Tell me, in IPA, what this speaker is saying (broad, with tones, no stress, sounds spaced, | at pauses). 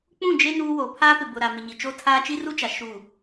k͡p ũ˦˨ d͡ʒ e˦ n uː˦ w oː˨ pʰ aː˦ p ɪ˨ b ʊ˨ ɾ a˨ m ɪ˨ ɲ i˨ t͡ʃ o˦ tʰ aː˦ t͡ʃ i˦ r u˦ t͡ʃ a˨ ʃ u˦˨